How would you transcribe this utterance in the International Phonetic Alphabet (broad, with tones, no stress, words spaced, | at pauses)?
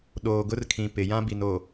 ɗoː˨ɡʊ˦rkʰĩ˨ pɪ˨ jã˦bi˨no˨